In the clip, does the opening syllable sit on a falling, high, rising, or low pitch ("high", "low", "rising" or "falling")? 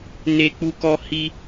high